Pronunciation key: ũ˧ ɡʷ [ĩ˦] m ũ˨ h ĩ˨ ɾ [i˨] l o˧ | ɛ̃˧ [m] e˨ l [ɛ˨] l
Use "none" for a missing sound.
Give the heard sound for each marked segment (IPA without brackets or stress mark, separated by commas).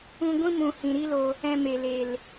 ĩ˦, i˦, m, e˨